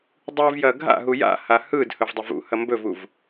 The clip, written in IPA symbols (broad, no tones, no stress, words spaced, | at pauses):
dˤɯvjɐ ɡʱa̰ɦu ja̰ha hɯd hɵvdˤɵvṵhɐ mbɵvuv